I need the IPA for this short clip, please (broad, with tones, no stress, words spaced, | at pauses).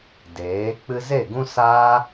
deː˨˦ k͡pɨ˧ze˦˨ɡũ˦ saː˦